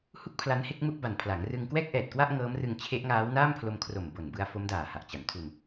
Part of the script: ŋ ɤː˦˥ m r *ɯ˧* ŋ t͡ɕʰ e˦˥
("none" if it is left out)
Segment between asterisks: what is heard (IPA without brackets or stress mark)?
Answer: ɯ˧